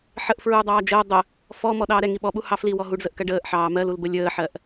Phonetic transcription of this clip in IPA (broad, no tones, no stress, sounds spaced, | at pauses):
ħ ə ʔ f ɹ uː dˤ ɑː d͡ʒ əː dˤ ə | f ɔ m ɔ ɗ ɑː ɾ ɛ ŋ i ɓ ɔ ɓ u h ɑ f l i w ɔ ɦ u ɖ z ə ʔ k ɜ ɖ əː ʔ ħ ɑː m ɜ l u l b ə lʲ əː ħ ɜ ʔ